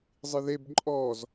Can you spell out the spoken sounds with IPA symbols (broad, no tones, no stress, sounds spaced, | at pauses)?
zˤ ɨ ð e b ǃʼ ɔ z